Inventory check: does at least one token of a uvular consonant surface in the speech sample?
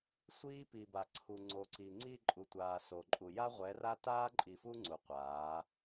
yes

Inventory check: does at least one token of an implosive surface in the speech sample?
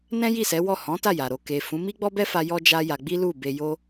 no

